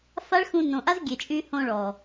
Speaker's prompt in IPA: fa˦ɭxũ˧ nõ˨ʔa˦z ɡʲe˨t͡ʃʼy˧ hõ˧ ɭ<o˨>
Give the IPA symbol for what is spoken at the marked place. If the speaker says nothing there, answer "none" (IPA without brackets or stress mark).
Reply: ɔ˨